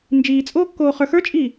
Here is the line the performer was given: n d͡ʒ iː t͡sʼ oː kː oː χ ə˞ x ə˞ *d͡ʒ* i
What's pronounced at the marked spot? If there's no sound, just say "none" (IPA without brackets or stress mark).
t͡ʃʼ